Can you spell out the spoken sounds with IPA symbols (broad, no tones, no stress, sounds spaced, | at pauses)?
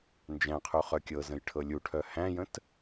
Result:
n d͡ʒ æ̃ qʰ u χ œ kʲ ɤ z ə̃ j ʈʰ ɤ lʲ u ʈʰ œ h æ̃ j ə̃ t